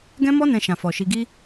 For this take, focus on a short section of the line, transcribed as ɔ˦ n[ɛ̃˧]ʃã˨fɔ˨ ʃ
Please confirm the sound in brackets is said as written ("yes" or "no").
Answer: yes